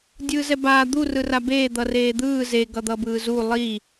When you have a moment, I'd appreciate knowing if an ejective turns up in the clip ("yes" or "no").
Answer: no